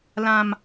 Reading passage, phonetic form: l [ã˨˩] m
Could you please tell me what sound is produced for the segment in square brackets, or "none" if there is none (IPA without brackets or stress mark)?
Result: ã˨˩